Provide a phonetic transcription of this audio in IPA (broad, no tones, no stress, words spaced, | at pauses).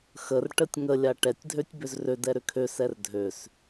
xər ʈətʲŋəlʲa ʈɛtʲdʱøtʲ bʏzrødɛ ɾʏkʰøsɛr dʱøs